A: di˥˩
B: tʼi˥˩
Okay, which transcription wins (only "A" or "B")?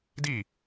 A